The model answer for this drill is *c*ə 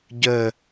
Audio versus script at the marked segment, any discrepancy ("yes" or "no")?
yes